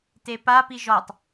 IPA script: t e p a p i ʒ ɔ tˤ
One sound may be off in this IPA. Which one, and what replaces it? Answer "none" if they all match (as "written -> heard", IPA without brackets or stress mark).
none